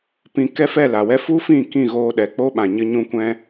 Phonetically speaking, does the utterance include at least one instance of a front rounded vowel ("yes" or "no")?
no